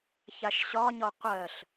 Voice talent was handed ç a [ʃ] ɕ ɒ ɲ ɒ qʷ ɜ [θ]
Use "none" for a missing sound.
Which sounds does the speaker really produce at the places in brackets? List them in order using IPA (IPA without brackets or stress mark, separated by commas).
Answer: ʃ, ɬ